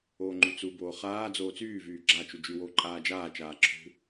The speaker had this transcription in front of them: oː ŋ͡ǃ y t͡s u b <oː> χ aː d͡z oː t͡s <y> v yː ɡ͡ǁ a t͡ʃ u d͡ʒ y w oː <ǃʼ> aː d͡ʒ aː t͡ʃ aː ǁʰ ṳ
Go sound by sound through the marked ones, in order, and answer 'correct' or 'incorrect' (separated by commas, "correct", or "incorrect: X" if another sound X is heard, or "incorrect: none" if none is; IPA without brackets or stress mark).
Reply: correct, incorrect: yː, correct